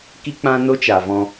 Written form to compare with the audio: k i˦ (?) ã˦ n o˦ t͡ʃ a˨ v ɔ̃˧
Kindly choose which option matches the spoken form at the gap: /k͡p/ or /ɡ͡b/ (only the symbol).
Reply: k͡p